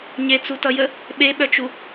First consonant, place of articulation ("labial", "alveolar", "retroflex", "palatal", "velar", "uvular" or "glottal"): palatal